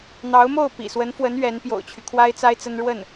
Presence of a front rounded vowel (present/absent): present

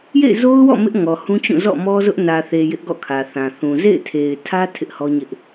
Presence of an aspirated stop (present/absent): present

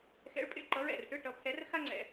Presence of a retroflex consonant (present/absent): present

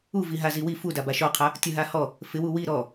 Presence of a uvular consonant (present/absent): present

